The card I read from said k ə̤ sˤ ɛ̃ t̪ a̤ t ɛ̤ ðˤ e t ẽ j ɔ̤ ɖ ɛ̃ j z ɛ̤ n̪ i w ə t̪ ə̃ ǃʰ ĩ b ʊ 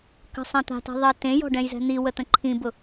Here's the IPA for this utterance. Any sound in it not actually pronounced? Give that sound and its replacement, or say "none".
none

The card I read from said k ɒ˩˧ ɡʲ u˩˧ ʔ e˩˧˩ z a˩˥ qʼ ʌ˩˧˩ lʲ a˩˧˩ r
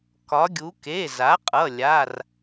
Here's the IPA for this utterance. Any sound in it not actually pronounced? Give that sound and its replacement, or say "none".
ʔ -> k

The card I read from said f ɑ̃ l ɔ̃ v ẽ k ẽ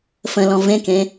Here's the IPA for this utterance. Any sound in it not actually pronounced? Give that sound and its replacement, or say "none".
ɑ̃ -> ə̃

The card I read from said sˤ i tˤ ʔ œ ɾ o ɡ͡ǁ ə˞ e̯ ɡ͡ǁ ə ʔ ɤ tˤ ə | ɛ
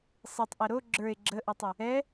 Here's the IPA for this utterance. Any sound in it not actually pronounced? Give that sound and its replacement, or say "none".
œ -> ɛ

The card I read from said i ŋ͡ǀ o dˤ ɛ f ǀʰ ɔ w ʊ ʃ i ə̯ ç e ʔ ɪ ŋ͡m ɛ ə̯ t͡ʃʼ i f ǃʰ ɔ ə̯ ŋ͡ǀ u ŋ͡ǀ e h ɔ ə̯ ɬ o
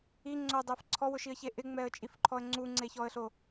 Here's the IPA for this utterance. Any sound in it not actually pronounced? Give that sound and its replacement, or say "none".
h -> ç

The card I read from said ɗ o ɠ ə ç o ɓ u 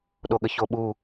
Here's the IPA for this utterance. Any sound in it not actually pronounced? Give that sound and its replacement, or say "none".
none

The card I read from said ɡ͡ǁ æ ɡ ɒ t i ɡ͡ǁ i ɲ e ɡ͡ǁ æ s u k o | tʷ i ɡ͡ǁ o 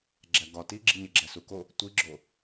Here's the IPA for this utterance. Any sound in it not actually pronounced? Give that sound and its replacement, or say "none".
none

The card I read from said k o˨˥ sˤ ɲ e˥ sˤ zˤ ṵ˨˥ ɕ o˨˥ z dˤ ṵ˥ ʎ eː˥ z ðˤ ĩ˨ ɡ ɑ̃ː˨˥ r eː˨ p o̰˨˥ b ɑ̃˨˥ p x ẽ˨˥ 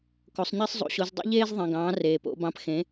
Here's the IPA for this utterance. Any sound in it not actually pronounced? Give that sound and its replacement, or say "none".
none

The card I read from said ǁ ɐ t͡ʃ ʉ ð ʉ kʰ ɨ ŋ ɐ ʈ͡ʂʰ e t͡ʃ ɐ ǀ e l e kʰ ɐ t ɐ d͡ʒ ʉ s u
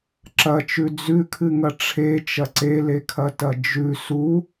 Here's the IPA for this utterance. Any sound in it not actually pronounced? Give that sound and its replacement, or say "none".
ð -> d͡z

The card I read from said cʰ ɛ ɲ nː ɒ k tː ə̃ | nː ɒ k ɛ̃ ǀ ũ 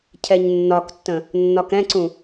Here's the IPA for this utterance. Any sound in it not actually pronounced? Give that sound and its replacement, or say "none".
none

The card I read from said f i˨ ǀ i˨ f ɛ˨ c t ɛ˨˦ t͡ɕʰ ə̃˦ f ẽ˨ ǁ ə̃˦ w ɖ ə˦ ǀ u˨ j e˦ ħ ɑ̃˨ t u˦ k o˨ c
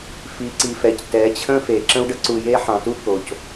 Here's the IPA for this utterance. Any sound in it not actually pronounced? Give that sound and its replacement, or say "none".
ẽ˨ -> e˨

